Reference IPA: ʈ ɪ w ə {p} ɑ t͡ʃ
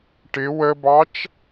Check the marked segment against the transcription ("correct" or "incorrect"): incorrect